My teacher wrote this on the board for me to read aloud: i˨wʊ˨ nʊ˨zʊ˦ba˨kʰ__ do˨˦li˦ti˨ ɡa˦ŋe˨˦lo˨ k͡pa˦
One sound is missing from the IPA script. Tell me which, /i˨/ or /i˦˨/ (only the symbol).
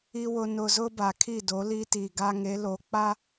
i˦˨